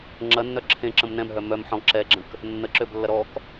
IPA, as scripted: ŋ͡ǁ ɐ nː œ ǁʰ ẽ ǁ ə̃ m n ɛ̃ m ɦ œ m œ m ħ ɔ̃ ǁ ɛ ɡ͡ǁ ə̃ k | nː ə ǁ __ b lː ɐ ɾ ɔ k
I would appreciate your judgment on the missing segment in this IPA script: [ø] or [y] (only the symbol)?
ø